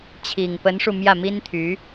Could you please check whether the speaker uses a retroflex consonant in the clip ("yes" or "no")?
yes